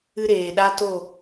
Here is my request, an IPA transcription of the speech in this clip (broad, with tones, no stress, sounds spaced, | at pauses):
ɨ˦ ɾ eː˨ ɗ a˦ t o˦˨